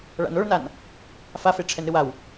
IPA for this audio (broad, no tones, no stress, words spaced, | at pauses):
ɭa̰noɭnan | fafe ʈ͡ʂʰɛnɾɨwaw